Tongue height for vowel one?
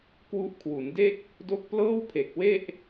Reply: high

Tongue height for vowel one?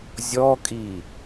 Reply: mid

